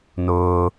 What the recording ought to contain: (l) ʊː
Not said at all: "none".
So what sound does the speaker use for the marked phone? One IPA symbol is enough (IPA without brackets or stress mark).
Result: n